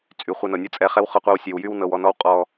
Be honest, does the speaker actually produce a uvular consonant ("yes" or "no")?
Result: yes